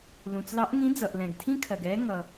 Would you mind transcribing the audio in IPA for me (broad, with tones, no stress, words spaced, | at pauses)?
lũ˩t͡slɑ˧˥ʔŋĩ˧˥ d͡zʌ˩ʔ lɛ̃˩ɡtʰĩ˥kʰɜ˩ɡ ɛ˧˥ ŋʌ˩